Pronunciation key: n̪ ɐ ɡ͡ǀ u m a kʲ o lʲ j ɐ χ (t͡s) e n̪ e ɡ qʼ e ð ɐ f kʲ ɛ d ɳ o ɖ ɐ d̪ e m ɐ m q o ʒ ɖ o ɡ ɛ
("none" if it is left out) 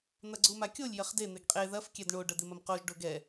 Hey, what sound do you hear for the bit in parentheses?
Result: d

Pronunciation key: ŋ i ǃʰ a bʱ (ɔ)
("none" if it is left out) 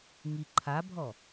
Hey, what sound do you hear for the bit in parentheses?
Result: ɔ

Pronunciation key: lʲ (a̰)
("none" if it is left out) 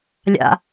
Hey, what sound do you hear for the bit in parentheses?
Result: a̰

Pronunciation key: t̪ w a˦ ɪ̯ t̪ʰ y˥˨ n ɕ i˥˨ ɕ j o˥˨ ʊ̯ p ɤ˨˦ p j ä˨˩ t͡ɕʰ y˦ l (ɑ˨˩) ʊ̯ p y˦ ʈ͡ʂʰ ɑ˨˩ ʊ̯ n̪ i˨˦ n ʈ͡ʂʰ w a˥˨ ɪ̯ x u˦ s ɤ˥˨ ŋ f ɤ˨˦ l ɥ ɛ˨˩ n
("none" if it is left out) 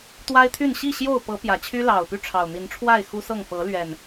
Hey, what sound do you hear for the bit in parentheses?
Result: ɑ˨˩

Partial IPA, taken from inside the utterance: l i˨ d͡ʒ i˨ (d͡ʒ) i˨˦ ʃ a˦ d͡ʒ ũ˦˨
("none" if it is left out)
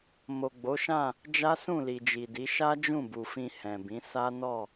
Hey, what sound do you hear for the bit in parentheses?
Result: d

